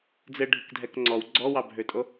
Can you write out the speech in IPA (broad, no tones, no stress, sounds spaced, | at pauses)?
d͡z ɘ ɖʱ ɨ k dʱ ɛ k ŋ͡ǀ ɔ w ɡ͡ǀ ɔ w ɑ bʱ ø tʼ o